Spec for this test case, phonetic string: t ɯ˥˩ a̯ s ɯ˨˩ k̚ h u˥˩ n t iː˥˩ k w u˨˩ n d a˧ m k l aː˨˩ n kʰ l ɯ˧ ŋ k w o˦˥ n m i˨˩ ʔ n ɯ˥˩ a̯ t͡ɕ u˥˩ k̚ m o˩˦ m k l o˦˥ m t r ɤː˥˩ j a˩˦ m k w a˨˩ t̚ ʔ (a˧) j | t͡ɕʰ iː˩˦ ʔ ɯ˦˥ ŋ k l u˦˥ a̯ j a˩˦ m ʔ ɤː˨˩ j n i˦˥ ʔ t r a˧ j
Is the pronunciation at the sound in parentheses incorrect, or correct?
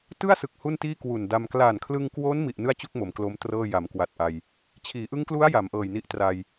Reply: correct